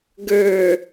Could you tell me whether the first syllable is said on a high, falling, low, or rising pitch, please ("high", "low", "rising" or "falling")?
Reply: low